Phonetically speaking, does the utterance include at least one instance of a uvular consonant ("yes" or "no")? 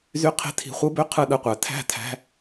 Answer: yes